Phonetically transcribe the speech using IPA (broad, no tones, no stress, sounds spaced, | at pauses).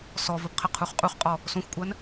s ɔ v ə p qʰ ə qʰ u χ qʼ u χ qʼ ɔ | s õ xʷ kʷʼ ɜ n